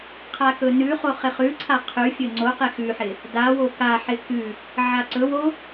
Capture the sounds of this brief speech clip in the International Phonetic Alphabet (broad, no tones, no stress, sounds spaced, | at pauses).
qʰ a k ɵ n ʉ χ o χ ɪ χ ʉ ǀʰ a qʰ ʉ fʲ ɵ ŋ͡ǀ o q e x ʉ ħ ɪ | d a w o k a ħ ɪ k ʉ | ʕ a ǀ ɵ w o